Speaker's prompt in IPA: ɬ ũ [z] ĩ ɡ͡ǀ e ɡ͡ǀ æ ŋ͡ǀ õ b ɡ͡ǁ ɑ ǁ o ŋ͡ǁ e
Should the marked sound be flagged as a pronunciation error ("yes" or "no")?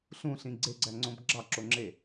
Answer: yes